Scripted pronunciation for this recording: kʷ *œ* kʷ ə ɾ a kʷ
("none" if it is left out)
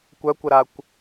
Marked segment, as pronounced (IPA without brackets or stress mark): œ